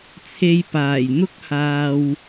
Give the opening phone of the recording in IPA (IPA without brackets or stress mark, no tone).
t͡sʰ